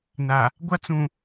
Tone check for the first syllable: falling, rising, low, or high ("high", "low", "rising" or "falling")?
low